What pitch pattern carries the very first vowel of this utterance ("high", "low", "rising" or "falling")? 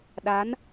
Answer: rising